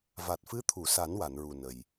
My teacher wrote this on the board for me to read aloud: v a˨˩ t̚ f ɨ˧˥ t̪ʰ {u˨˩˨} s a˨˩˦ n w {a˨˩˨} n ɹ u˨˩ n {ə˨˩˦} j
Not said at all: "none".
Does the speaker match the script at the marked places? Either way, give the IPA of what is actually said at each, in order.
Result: u˨˩˨, a˨˩˨, ə˨˩

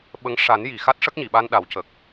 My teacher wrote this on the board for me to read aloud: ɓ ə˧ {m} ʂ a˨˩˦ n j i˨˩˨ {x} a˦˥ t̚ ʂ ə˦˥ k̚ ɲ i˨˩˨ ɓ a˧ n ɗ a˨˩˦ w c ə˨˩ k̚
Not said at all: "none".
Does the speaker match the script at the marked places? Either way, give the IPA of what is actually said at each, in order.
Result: ŋ, x

